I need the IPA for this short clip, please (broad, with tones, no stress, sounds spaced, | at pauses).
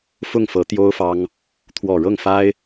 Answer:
f ʊ˥˩ ŋ f ɤ˧˥ t̪ j o˥ ʊ̯ f ɑ˥ ŋ | t̪ʰ w ɔ˨˩ ɻ ɤ˥˩ ŋ f a˥ ɪ̯